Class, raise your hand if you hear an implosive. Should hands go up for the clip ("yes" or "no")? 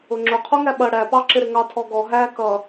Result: yes